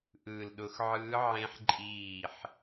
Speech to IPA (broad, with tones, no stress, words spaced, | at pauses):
ʔɯː˧˩lɗʊ˧˥x ʕɯː˧˥ ʕẽ˧˥ħ ǃʼiː˧˩ħ